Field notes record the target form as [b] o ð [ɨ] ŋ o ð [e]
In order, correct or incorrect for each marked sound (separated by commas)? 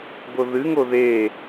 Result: correct, correct, correct